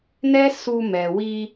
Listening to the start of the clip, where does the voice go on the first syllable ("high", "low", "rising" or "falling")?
high